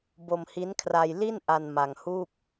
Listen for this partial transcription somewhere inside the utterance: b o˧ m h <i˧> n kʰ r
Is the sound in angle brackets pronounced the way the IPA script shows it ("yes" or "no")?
no